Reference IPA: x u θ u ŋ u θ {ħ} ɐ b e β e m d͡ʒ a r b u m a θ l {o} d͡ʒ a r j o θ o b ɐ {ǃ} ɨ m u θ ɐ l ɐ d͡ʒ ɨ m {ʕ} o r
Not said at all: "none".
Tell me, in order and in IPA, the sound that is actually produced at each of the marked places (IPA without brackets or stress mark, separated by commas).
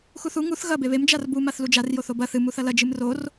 ɣ, u, θ, r